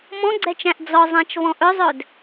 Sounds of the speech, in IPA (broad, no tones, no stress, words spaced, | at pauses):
mɔ̃ɡ͡ǀɛt͡ʃæ̃ʔ d͡zɔzˤæ̃t͡ʃvɔ̃ ʔɵzˤɵd